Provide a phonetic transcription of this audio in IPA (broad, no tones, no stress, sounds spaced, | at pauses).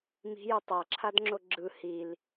m i̤ j ɯ tˤ a ǁʰ a d ŋ͡ǁ o ɡ͡ǁ ɯ h i l